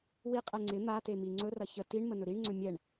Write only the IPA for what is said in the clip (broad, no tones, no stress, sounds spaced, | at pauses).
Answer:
w i qʼ ɛ ŋ͡ǀ ɪ n̪ a t e m i ŋ͡ǀ ɵ r ɐ ç ə t i ɳ m ə n ɵ ɾ i ɳ ŋ͡ǀ ɵ mʲ ɛ ɳ